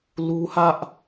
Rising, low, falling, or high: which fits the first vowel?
high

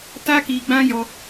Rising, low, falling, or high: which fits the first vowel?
high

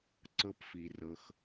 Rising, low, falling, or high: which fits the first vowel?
low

